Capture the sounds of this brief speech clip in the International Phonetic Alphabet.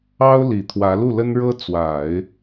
ɑ˥ʊ̯li˨˩ t̪ʰwä˧˥lu˥˩lə˥nɻɤ˥ t͡swa˨˩˦ɪ̯

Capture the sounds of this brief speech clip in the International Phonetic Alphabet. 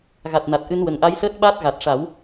ɣa˨˩t̚na˨˩t̚ʔɨ˧nwə˨˩ŋ ʔa˧˥jsəː˦˥t̚ɓaː˦˥t̚ ɣa˨˩t̚ʂa˨˩˦w

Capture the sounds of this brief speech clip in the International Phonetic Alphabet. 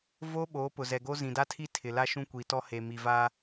vo˦ ɓoː˨˦pʊ˨zɛ˨ɡo˦ zĩ˨da˦ tʰi˦ tʰɪ˨la˦ʃũ˦kʷi˨ tɔ˦he˨ mi˨vaː˦

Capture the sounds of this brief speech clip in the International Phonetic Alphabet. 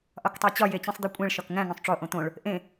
ʔɒktˤæt͡ɕɒ jet͡ɕĩsˤd̪ikʷʼẽɭ ʃɒkŋæ̃ ŋõsˤʈ͡ʂo ʔõt̪õɭ | ʔẽ

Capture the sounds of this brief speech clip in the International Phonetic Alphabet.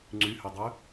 ŋ͡ǀyhødˤø

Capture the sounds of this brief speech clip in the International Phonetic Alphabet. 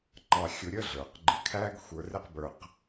ŋ͡ǃɑ˧xʲʊ˧ɾʲə˥ɮə˞˩q ɡ͡ǃɪ˧kʰæ˥ɡ xʷə˞˧rɪ˥qbə˞˧q

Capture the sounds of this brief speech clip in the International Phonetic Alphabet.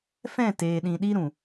fɛ̃˦˨ teː˨ɗĩ˨ ɗi˦ɾũ˨

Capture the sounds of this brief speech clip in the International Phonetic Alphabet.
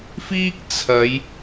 fiː˥k̚t͡sʰɐ˨˧j

